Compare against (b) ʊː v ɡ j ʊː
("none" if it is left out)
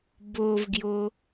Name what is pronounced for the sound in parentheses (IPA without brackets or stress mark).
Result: b